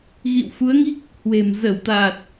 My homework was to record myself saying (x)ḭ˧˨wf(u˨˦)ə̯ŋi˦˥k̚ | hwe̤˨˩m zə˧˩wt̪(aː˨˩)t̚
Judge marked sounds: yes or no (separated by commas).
no, yes, yes